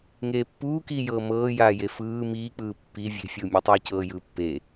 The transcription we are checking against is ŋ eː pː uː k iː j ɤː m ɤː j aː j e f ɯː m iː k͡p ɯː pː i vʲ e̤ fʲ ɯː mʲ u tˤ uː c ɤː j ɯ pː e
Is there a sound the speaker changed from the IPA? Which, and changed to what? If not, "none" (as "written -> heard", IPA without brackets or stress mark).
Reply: none